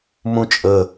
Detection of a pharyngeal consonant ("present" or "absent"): absent